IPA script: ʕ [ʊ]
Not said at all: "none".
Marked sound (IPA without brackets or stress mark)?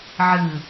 ɯ